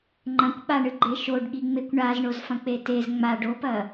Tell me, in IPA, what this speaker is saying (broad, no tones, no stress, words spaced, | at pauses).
ŋ͡ǃɐ̃kʷɓaɳɨɡ͡ǃe ʃoɖɠiŋ͡mekʷ ɳazɳozfɐ̃k͡pe tez ŋ͡ma ɖopɐ